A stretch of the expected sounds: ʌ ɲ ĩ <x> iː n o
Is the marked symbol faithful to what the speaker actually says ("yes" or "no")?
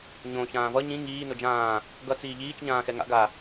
no